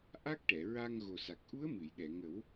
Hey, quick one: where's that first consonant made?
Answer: throat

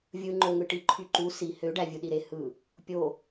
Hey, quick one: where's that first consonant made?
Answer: lips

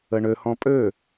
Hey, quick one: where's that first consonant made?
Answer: retroflex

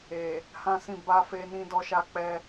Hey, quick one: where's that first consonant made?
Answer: throat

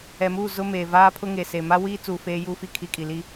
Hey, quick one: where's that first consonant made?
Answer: lips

